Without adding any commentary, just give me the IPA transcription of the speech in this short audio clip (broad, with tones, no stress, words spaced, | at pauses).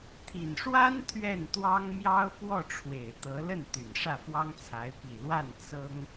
t̪ʰi˨˩nʂwa˥n t̪ʰɥɛ˥˩nt̪wɑ˥ŋ mjɑ˥ʊ̯ pwɔ˥˩ʈ͡ʂʰwe˨˩ɪ̯t̪ɤ˧˥ lə˥˩nt̪y˨˩n ʂä˥˩fwɑ˥ŋt͡sʰa˧˥ɪ̯ pi˨˩lwa˥˩n t͡sɤ˥ŋ